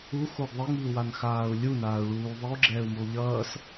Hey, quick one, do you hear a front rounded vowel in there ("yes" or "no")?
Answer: no